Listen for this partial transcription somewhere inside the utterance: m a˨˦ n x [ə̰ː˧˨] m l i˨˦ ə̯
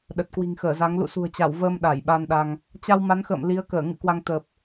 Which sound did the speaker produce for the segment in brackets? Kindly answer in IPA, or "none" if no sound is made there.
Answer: ə̰ː˧˨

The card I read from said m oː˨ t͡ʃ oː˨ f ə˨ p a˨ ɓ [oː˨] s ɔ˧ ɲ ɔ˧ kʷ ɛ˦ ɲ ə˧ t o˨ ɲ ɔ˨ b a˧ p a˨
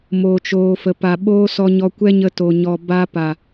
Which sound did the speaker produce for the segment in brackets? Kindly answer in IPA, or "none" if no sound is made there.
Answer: oː˦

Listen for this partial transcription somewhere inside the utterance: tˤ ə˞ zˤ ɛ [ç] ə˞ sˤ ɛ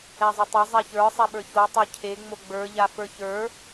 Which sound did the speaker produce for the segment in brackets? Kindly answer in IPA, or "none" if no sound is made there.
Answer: ç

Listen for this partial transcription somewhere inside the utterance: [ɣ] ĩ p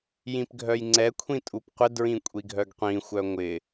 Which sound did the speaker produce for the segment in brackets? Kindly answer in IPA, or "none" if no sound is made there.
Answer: j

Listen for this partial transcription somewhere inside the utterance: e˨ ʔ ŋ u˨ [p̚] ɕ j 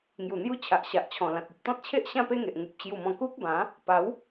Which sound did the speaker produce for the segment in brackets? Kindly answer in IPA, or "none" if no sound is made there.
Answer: p̚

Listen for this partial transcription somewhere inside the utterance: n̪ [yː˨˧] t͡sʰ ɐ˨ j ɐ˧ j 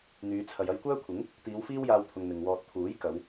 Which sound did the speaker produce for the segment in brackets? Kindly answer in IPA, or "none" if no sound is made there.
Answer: yː˨˧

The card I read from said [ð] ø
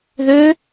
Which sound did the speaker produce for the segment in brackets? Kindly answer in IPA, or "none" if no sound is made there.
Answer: ð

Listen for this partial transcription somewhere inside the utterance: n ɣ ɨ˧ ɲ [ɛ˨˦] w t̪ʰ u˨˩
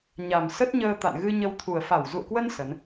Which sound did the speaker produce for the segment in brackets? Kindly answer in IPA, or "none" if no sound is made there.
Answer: ə˨˦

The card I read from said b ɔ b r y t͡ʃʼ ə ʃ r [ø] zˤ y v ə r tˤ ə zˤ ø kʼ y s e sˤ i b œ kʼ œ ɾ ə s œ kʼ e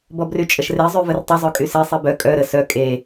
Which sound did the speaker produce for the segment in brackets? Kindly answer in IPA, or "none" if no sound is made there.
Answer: e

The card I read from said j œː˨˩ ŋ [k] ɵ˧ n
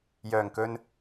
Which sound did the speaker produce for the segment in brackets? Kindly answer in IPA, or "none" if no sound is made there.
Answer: k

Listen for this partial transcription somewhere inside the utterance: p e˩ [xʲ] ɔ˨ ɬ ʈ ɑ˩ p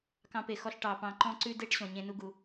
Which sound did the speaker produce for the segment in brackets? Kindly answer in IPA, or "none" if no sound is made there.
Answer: x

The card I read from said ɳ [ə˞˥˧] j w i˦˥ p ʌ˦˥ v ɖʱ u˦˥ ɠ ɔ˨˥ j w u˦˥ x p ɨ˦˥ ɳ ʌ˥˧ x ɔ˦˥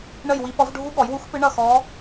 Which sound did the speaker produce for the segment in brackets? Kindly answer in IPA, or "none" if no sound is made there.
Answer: ə˥˧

